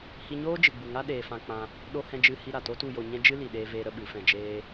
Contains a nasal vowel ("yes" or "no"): yes